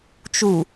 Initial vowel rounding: rounded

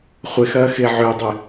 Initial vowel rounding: unrounded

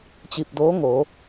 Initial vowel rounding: unrounded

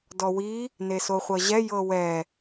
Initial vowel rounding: rounded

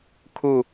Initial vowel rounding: rounded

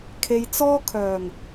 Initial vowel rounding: unrounded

